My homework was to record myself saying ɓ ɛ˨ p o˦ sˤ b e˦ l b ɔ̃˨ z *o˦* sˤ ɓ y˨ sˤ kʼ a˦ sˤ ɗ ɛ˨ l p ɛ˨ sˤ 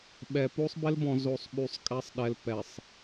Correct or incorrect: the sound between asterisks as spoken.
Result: incorrect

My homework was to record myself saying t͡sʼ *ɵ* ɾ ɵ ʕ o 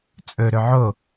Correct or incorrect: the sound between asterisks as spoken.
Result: correct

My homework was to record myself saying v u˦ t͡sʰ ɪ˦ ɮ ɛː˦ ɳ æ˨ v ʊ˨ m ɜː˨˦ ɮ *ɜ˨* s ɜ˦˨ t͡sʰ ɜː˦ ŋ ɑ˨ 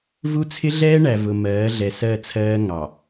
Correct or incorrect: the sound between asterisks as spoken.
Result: incorrect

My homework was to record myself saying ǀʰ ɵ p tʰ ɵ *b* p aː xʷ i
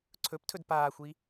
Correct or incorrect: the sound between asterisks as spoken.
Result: incorrect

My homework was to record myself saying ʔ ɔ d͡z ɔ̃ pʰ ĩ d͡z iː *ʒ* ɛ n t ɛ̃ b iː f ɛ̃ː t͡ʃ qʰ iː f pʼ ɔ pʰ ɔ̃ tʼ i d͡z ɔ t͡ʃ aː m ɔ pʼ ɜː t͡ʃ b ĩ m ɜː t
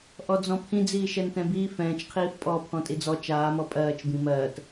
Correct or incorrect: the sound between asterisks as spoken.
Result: incorrect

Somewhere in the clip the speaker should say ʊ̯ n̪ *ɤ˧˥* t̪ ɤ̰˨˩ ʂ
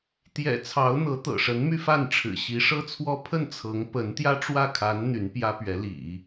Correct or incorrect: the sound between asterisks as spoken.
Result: correct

